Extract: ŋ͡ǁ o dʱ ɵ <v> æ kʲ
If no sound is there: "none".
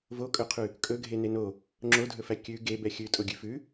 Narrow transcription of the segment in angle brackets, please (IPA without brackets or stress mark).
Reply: f